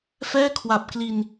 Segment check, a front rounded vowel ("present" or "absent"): absent